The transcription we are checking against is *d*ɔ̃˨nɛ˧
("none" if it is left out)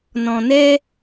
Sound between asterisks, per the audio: n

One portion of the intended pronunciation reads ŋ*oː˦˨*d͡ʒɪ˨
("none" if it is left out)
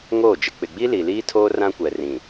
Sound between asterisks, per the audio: oː˦˨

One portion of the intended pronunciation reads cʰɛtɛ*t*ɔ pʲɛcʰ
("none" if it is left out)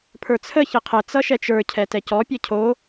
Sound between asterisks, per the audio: c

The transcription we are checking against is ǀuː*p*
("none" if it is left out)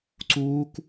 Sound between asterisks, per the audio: k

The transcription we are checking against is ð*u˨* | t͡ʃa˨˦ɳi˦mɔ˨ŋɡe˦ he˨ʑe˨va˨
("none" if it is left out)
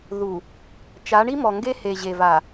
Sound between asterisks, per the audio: u˨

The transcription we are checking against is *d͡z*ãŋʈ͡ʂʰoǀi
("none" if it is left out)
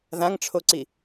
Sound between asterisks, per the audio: ð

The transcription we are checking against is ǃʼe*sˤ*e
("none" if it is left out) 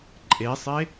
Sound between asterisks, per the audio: sˤ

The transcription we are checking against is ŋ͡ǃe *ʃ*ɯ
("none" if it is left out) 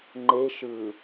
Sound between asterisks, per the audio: ʃ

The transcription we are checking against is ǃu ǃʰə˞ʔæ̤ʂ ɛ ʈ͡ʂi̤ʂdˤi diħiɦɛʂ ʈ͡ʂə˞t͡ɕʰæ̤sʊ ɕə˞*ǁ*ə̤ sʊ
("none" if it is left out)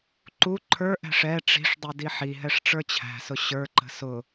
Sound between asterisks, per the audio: ǃ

